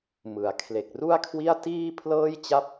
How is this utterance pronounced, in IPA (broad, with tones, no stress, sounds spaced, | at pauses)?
m ɯ˩˦ a̯ kʰ l e˨˩ k̚ r u˥˩ a̯ kʰ w i˥˩ a̯ t iː˥˩ pʰ l ɤː˥˩ j t͡ɕ a˥˩ p̚